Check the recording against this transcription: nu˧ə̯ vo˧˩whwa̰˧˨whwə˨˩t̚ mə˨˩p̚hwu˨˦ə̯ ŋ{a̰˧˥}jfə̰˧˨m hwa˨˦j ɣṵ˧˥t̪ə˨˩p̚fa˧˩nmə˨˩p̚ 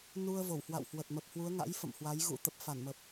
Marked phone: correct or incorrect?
correct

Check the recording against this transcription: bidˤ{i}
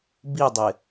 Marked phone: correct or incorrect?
incorrect: ɪ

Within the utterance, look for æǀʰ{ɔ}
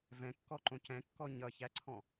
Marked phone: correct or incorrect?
incorrect: ɔ̃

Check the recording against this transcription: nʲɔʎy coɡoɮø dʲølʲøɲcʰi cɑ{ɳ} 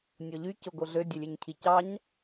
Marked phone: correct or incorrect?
incorrect: ɲ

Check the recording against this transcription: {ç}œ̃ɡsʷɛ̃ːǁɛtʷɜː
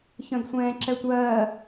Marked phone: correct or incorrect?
correct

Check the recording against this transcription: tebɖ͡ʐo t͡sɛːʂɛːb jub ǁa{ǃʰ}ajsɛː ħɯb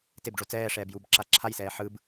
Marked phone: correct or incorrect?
incorrect: ǁʰ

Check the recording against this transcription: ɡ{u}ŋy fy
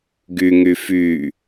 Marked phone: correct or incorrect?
incorrect: y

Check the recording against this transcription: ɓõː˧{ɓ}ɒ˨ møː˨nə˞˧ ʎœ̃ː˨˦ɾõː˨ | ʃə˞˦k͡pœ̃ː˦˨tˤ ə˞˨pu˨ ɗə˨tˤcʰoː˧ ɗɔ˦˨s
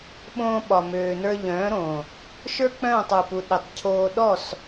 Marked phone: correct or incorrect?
correct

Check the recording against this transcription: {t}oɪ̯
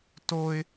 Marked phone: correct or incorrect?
correct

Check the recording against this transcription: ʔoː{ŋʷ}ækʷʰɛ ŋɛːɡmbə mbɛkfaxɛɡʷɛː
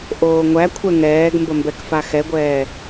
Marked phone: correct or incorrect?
correct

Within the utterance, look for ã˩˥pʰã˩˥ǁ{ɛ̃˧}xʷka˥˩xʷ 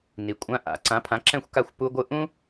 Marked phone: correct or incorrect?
incorrect: ɛ̃˥˩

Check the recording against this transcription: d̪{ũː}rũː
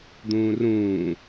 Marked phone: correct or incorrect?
correct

